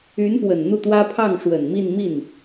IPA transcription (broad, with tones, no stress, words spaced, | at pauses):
y˧˥npwə˨˩nn̪u˥˩t̪wä˥ pʰɑ˥˩ŋʂwə˨˩nmi˥˧nmi˥˩n